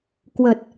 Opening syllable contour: low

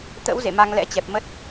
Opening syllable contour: rising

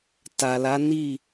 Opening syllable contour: low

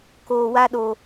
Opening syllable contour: low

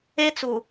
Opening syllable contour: high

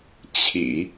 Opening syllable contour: low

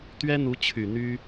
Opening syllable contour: high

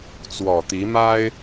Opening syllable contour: low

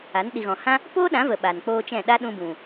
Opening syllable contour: rising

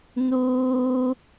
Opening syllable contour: high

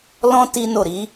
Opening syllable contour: high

